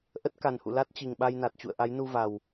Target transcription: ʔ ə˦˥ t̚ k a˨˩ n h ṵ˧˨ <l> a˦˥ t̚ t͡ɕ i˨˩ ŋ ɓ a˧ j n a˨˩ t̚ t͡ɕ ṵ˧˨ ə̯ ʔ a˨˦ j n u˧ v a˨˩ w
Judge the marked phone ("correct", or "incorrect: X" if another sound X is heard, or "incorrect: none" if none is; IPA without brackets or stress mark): correct